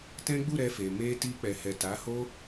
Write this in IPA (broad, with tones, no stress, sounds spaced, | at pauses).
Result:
t ɛ̃˦ ɡ͡b u˦˨ ɾ ɛ˧ f e˨ m e˧ t i˧ k͡p ɛ˨ h ɛ˨ t a˨˦ h o˦